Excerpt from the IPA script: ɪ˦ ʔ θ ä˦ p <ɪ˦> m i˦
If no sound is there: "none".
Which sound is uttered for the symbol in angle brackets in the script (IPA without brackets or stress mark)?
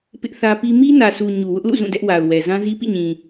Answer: i˦